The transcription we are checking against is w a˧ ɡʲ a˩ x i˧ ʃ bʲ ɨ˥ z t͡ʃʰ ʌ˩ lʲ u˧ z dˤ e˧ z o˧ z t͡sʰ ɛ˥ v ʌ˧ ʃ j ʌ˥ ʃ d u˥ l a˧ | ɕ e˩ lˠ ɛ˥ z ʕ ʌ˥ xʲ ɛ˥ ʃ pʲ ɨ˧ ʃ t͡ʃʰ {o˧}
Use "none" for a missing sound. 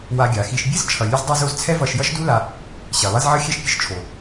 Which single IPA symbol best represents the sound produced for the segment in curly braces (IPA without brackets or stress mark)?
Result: o˩